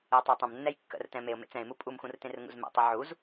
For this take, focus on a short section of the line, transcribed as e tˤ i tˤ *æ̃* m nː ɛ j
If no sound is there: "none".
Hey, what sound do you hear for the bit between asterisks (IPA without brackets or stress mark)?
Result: ə̃